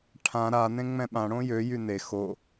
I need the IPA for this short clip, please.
ʈʰã ɾa nẽŋ͡mɛ̃ɓãɽõ jøjy ne xo

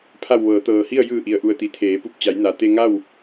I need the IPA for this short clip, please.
pʰa˧˩wʋɤː˩˧t̪ɤː˩hi˥˨ə̯ jɯː˧˩ʔi˩ə̯ʔu˩ə̯t̪i˩ t̪ʰeː˩˧pu˧˩p̚t͡ɕa˩˧j na˩ t̪e˧ŋa˥˨w

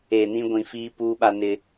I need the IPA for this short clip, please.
e˨nĩ˦ɡʷĩ˨ fiː˦puː˦ɓa˦nɪ˦

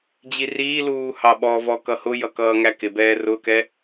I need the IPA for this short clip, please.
d͡ʑiriːluː hɑɓɔvɔ kʌhʊjʌ kʌːŋækɪbɛː rʊkɛ

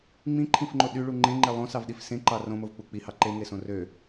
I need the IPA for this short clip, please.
ŋ͡mĩǃʰĩfŋ͡ǃo ɗyɭu ŋ͡ǃẽŋ͡ǃe lˠõsɑvɗif sẽǃɑ rõmovk͡pu k͡pihɑ ǃeŋesõ rø

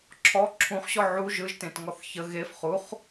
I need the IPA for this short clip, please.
ǁʰɔ ǁʰũχɕɔ ʕu ʒɯʒtẽt ŋɔθçə ɣef χuχ

